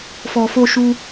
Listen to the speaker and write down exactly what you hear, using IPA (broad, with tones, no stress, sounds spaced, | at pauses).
f ɔ˨ f o˧ ʃ u˧